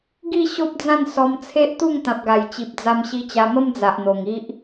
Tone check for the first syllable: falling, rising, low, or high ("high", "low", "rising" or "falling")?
falling